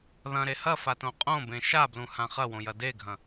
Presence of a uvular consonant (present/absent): present